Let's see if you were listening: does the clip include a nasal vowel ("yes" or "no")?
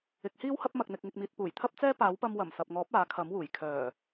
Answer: no